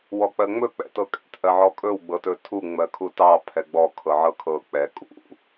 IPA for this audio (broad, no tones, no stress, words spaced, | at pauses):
wɔk͡pɜŋ͡mɵ k͡pɛ̰tɤkʼɛ̰t ʔɜʕɔkʼɵw ɡ͡bɤtɵtʰu ŋ͡mɜkʰutɑ pʰɛɡ͡bɔ kʰɤʕɤkʰɤ k͡pɛ kʼṵ